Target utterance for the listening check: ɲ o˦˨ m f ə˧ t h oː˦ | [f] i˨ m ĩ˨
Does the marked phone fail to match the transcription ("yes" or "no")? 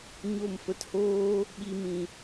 yes